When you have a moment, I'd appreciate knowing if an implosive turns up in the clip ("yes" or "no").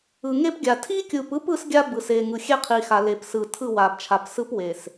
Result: no